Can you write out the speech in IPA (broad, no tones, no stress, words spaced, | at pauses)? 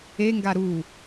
e ŋɡaɾu